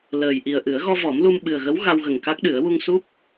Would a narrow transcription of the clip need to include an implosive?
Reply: yes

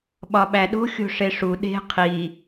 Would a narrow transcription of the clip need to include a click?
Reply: no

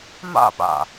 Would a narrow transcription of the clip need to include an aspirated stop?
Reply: no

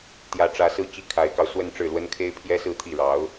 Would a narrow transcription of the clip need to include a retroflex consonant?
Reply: yes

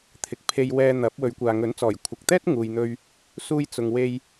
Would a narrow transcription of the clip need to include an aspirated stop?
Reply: yes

